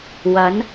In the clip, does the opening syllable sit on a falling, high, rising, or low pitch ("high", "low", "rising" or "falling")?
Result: rising